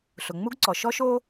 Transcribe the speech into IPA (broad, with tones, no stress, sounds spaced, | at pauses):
ɬ ʊ˩ ŋ͡m u˥ ɡ ǀ ɔ˩ ʃ ɔ˥ ʃ o˥